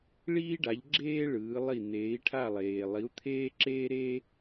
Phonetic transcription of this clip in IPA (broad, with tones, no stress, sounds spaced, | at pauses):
ɭ iː˧ ɖ a˩˧ ʎ ɡ͡ǁ eː˧ ɭ ɯː˩˧ lˠ i˧˩ n̪ eː˩˧ i̯ ʈʰ a˧˩ lˠ eː˩ lˠ i˩˧ u̯ t̪ʰ eː˧ ǁ eː˧ ɾ e˧